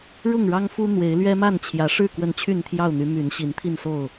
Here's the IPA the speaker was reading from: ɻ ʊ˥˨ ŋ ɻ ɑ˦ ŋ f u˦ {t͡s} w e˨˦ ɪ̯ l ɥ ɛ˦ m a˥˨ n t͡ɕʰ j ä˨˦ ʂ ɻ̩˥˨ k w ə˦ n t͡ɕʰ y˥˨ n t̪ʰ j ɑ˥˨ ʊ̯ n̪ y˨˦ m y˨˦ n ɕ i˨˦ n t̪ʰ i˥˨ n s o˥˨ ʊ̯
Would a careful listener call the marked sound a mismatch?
yes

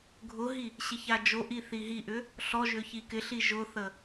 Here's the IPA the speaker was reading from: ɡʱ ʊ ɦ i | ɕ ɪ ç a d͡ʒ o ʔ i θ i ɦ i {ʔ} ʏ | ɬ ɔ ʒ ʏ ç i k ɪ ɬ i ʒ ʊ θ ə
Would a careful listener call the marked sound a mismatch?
no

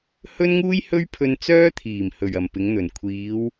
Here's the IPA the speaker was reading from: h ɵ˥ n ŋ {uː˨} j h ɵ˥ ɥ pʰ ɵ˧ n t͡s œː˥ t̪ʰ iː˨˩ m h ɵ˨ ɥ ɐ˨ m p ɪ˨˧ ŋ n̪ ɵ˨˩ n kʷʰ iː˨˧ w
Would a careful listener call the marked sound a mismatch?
yes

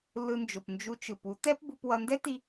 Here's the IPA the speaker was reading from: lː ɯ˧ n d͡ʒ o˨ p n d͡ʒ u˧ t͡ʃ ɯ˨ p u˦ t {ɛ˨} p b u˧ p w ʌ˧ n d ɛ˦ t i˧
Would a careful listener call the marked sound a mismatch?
yes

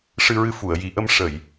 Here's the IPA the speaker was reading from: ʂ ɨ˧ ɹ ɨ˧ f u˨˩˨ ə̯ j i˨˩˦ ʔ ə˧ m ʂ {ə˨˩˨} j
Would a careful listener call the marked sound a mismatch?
no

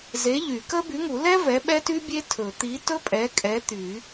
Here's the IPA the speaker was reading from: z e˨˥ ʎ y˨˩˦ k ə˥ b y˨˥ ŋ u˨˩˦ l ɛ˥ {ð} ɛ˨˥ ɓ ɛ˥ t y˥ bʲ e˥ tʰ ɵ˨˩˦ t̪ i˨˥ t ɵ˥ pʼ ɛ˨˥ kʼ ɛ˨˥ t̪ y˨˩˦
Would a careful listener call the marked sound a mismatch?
yes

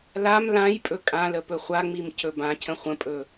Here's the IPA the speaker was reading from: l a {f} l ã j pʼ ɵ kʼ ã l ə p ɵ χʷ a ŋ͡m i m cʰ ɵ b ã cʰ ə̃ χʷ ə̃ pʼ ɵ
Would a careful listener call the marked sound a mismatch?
yes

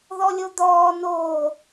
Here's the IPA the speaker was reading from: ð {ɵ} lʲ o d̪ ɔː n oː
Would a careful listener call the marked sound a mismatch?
yes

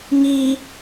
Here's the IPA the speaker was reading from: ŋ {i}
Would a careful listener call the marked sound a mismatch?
no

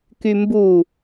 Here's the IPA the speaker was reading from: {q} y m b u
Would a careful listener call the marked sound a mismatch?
yes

